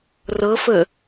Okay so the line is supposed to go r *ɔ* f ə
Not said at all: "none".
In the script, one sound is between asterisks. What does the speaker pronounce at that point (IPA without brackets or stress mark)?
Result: ɤ